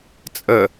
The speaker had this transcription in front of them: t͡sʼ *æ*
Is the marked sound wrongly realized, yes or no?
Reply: yes